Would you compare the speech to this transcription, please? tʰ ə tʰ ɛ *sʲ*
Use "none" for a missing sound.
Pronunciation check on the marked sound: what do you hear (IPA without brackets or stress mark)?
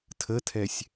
sʲ